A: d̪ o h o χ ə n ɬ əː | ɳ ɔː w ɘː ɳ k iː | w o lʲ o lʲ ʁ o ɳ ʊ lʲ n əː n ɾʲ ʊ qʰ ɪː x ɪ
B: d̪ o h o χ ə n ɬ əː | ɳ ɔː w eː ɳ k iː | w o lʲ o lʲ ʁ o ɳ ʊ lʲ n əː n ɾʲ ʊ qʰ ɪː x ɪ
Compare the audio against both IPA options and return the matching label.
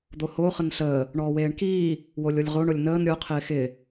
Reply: B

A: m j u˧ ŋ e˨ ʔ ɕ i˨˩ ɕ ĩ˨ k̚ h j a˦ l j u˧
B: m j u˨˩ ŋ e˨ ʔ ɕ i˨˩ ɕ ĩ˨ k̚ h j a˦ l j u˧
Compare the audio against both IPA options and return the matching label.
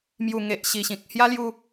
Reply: B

